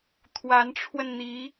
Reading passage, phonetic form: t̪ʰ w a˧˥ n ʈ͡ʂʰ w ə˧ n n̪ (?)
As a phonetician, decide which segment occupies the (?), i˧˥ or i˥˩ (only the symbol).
i˧˥